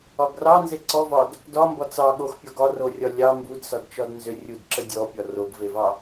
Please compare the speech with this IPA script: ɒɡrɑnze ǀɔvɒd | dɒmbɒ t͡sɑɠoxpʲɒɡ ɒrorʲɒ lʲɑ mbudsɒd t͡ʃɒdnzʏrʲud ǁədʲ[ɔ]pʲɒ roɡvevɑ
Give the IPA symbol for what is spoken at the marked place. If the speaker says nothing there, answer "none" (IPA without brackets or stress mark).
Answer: ɔ